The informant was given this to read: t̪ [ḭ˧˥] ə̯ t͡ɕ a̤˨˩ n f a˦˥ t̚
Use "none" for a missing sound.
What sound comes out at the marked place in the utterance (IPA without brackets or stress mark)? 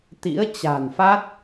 ḭ˧˥